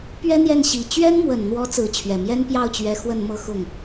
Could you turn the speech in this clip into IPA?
p ɥ ɛ˥ n̪ j ɛ˥˩ n ɕ i˨˩ t͡ɕ ɥ ɛ˥ n m w ə˨˩ n n̪ w ɔ˧˥ t͡s ɹ̩˧˥ t͡ɕʰ ɥ ɛ˨˩ m j ɛ˥ n p j ɑ˥˩ ʊ̯ t͡ɕ ɥ ɛ˧˥ x w ə˥˧ n m ɤ˥˧ x ʊ˥˩ ŋ

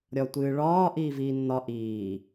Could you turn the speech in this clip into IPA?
ɾʲ ɒ tʷ ɨː ɭ ɒː ʔ iː v iː nː ɒ ʔ iː

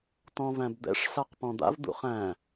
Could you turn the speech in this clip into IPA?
t ɔ̃ v æ̃ b d̪ ɛ̰ ʂ ɬ a q p ɔ̃ d̪ a̰ v d̪ ṵ χ æ̃

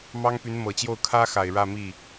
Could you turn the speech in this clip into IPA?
m ɑ˥ ŋ p y˧˥ n m ɤ˨˩ t͡ɕ j o˥˩ ʊ̯ kʰ ä˥ x a˨˩ ɪ̯ ɻ ä˥˧ m i˥˩

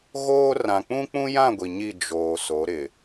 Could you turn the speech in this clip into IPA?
ɣ oː˦ r ã˨ k͡p ũ˦ k͡p ũ˦ j ã˦˨ ɡʷ i˨ ɲ i˦˨ d͡ʒ oː˨ s o˨˦ ɾ ɪ˨

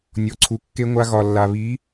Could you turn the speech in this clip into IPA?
nʲ ɔ˨ ǀʰ u˨ kː e˧ ŋʷ a˧ ɣ ɒ˨ lː a˨ β i˨˦

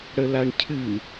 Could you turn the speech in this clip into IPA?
ɽ ə l a ɳ cʰ ɨ

